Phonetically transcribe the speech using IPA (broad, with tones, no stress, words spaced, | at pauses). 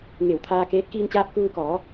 ŋe˧˩wt̪ʰaː˧keː˧˥t̚ kiː˧nt͡ɕaː˧p̚kuː˧kɔː˩˧